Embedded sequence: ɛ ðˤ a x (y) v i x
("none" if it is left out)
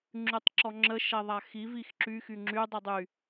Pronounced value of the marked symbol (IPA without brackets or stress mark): i